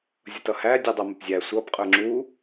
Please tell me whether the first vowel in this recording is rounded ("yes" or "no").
no